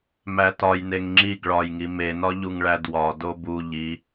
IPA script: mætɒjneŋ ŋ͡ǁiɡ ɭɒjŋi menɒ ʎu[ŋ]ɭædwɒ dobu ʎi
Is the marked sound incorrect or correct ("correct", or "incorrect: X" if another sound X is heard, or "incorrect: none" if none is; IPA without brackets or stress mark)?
correct